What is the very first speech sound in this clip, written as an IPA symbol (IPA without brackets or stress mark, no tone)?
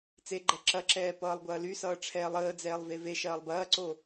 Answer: t͡s